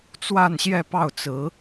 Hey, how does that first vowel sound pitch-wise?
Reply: falling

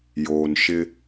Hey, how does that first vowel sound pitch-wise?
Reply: low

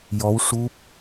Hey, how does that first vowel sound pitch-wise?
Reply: rising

